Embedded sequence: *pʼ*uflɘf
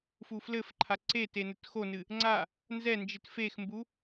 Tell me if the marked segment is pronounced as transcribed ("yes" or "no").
no